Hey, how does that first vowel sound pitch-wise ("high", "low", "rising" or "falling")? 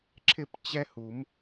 falling